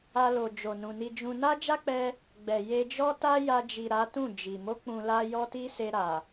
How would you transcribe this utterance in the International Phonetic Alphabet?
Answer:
a˧lo˨ d͡ʒo˨nũ˨ni˧d͡ʒũ˧ na˦d͡ʒa˦k͡pɛ˧ | ɡ͡bɛ˨ je˧d͡ʒɔ˦ ta˦ja˧d͡ʒi˨ ɾa˨˦tũ˦˨ d͡ʒi˨ mo˨˦ k͡pũ˧la˦ jɔ˦ti˦se˧ ɾa˨

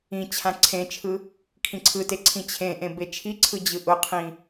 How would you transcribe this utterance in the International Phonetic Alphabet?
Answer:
ĩ t͡ɕʰãǀʰẽt͡ʃʰɯ | kʰĩǀʰɯte ǀʰĩt͡ɕʰẽʔẽ bet͡ʃʰiǀʰɯ d͡ʑɯʔʊqʰĩ

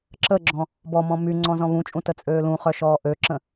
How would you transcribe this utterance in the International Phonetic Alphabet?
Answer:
ǁəɡ͡ǁɔ̃ | bɔmɔ̃ my ŋ͡ǀɔ̃zɔ̃βũt͡ʃʼũ tət͡sʼøːlũχœ ʃɔːʔøǁə̃

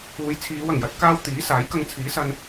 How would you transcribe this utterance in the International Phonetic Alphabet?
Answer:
uː˨˧jt͡sʰiː˨˧wɐ˨˩ŋjɐ˨˥t̚ kaː˥w t̪iː˨˥saː˨˥j kɐ˧ŋt͡sʰiː˨˥sɐ˧n

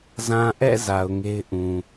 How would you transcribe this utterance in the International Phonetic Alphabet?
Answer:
zã˨ʔɛ̰˦˨ za˨ʊ̯ŋe˦ɪ̯ ʔũ˨

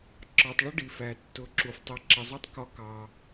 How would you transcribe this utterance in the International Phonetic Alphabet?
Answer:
ǁɒ˨tˤɭʊ˦ ɖi˨fæ˨tːʊ˨˦ǁu˨f tˤɛ˨ǁə˨zˤu˧tˤ kɒ˧kɑ˨

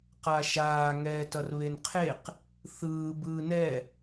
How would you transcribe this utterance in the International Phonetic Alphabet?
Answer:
qaʃaː ŋɛːtʌrβenqʰeq | θɯː bɯːnɛ

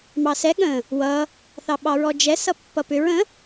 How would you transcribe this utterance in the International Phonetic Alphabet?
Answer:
mɑsɛ ɠə̃ | wʌ | θɑɓɑɹɔd͡ʒɛ sʌpːʌpʏɹ ə̃

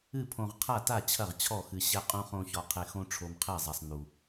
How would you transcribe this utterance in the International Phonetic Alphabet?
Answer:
ɨ˥˩pʰõ˧ʁqʰa˥˩ta˥˩ t͡ɕʰɐ˥˩ʁt͡ɕʰɔ˥˩xɨ˧ ɕɛ˧qʼũ˧χõ˧ çɔ˧qʰe˧ xõ˧ ʈ͡ʂʰo˧mqʰe˥˩zˤa˧sˤ nu˧

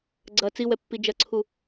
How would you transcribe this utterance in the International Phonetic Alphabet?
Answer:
ɡ͡ǀɐ t͡siwɛpːi d͡ʒɐǀʰu

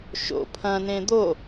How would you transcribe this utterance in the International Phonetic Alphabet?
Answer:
ʃo̰ pʰɐ̃nẽ d̪o

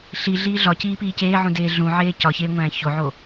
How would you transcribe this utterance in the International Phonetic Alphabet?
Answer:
ɬiɮiː ɮɒciːpiː ceːʕũdeː ɮũʕeː cɒçeːŋʷæ̃ː çoʕoː

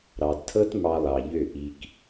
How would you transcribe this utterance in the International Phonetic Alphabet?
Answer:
ɾɑ˨dtʰɤ˦t mɑ˧lˠɑ˨ʎø˦˨ ʔi˦k

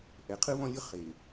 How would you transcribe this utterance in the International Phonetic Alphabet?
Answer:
ʔɛ˨˦qʰɯ˦βɔ̃˦lʲɯ˦ χe˨

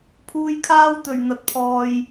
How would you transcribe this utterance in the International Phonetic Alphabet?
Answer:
pʰuː˧jkʰaː˥wt̪ɵ˨˩ɥ n̪ɐ˨t̚pʰɔː˨j

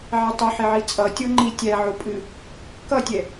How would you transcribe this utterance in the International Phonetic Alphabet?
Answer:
ʕɛtˤuħeʕi t͡sʼʌ tʲoŋ͡ǃi tʲæ ʕopʼɨ | kʌtʲɛ

